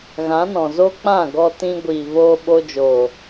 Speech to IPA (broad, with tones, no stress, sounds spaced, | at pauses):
ɣ ã˨˦ n ɔ̃˨ z o˦ k͡p ã˦˨ ɡ ɔ˧ t ĩ˧ ɡʷ iː˨ v oː˧ ɓ o˧ d͡ʒ o˨